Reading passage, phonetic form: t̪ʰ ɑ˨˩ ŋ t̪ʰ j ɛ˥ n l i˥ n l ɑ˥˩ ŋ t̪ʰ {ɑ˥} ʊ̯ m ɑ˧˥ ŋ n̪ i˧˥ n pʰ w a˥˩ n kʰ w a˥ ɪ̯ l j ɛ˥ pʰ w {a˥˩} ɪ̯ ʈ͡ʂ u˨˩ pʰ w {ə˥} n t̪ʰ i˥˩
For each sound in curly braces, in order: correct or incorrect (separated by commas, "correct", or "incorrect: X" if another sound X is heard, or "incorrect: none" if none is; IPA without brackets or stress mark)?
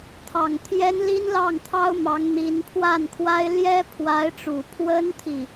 correct, incorrect: a˧˥, correct